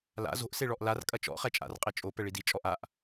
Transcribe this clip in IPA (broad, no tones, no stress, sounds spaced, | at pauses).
l a̰ z o̤ ʔ s e ɭ ɔ ʔ l a r kʼ ɐ t͡ʃ ɔ̰ χ ɛ t͡ʃʼ a̰ r qʼ e t͡ʃʼ o p ɛ ɭ i d i t͡ʃʼ ɔ ʔ a ʔ